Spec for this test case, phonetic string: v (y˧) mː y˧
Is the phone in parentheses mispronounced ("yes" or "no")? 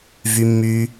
no